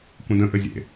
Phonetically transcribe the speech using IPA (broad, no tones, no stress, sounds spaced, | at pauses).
kʷ ə̃ d ə̃ ʔ ɘ zʲ ḛ